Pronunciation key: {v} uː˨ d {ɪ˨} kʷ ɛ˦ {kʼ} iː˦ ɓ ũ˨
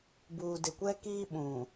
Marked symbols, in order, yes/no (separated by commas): no, yes, no